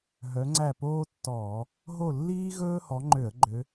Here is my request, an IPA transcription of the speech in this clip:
ɦ œ˨˦ ŋ͡ǀ æ˦˨ p oː˥ tː ɔː˧˩˧ | ɦ o˦˨ lː iː˥ ɣ ɵː˥ h ɔ˨˦ ŋ͡ǃ ø˧˩˧ ə̯ ɡ͡ǃ ø˨˦

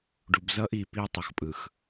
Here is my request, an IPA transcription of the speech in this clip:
ɖ u˨ b z ʌ˦ ʔ i˨ p i˦ tˤ ʌ˨ x pʼ ɯ˨ x

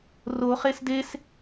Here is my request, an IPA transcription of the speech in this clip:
r o χ e s d e s

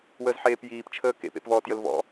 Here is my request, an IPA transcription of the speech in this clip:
w əː z ħ eː p j iː p t͡ʃʰ əː k ḛ p ḛ p v ɔː t j ə l v ɔ̰

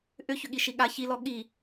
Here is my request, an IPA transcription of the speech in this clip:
ʔ ʏ ç ʏ ɠ i ʃ i ɠ a ç i l ɔ ɠ i

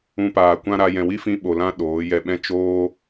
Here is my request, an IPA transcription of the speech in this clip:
ũ˧ p aː˨ kʷ ã˦ ɾ a˧ j ɛ̃˨ w i˦ f ĩ˧ ɓ o˨ l ã˦ ɗ oː˨˦ j ɛ˧ ɓ ɛ̃˦ t͡ʃ oː˦

